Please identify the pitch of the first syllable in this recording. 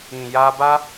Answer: low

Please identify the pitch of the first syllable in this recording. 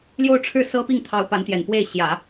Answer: falling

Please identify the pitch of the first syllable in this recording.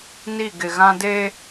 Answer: falling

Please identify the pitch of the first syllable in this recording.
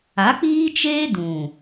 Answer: rising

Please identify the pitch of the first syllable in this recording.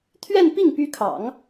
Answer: falling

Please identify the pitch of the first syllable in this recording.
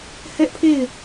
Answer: high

